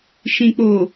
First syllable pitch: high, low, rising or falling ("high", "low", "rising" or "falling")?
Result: low